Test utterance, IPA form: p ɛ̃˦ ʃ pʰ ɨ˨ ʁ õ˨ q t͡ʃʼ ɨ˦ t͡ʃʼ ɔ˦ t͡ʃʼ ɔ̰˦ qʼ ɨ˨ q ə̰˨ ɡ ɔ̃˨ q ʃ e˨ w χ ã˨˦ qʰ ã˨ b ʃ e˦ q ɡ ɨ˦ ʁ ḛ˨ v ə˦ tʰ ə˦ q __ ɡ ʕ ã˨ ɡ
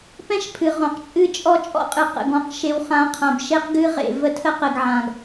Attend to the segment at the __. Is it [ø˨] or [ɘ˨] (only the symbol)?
ɘ˨